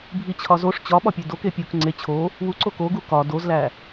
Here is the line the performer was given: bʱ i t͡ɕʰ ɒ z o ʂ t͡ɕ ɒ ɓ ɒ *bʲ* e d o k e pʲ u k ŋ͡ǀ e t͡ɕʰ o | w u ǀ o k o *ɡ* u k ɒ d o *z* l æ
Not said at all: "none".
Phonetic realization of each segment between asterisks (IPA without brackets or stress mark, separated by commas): pʲ, ɡ, z